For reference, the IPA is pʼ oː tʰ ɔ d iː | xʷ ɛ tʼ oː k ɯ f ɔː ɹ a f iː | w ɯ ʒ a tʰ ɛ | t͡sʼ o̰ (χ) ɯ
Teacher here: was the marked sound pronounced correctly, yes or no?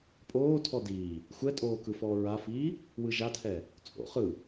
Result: yes